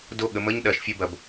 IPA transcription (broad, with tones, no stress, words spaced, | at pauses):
do˦˨ɠə˩˧mə˧˥˧ɲ ɗɐ˩˧ʃfʲə˦˨bɐ˩b